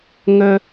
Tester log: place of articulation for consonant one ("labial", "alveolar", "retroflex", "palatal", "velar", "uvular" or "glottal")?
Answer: velar